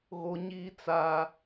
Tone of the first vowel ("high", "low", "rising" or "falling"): high